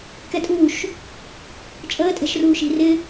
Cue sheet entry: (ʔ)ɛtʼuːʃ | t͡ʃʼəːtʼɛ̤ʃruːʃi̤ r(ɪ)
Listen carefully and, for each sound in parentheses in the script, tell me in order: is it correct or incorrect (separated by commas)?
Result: incorrect, correct